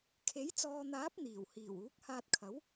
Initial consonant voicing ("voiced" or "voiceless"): voiceless